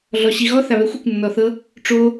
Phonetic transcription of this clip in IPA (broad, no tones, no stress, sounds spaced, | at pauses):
ɮ ɔ ɕ i ɣ ɔ θ a β ɛ xʷ ɯ kʷ nː ɔ θ ɤ | ʈ͡ʂ o